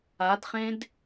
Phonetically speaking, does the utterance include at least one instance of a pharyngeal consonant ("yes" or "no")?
no